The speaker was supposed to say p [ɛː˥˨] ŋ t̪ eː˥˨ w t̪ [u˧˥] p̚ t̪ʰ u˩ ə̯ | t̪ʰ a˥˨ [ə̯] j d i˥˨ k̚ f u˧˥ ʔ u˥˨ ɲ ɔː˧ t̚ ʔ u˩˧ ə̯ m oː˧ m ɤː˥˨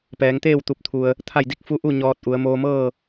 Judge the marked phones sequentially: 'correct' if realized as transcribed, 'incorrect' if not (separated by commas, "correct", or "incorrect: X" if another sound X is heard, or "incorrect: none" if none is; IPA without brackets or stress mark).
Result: incorrect: ɛː˩˧, incorrect: u˧˩, incorrect: none